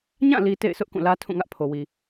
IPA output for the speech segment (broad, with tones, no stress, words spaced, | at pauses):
ɲã˦˨li˨ tḛ˦˨ɪ̯sʊ˦ʔ kũ˦˨lä˦tʰũ˦˨ŋä˦ʔ pʰo˨wi˨